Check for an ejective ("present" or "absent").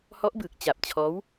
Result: absent